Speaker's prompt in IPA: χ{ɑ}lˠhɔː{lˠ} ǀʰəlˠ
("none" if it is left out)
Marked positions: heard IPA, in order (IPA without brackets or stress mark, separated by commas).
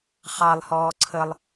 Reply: ɑ, none